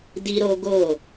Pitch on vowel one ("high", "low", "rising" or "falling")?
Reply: high